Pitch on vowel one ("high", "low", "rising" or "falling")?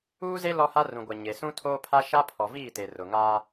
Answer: high